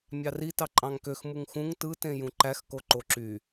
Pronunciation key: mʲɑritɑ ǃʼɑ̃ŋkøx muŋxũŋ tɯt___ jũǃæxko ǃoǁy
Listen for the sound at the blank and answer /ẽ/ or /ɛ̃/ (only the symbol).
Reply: ẽ